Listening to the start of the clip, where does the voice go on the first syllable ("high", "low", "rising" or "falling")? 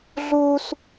high